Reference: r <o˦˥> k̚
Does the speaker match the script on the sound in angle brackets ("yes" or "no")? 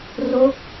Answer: yes